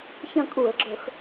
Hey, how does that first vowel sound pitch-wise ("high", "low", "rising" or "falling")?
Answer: falling